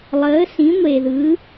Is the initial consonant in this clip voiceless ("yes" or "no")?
no